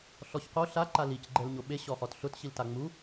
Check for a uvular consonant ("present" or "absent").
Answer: present